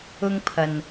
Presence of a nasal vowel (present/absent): absent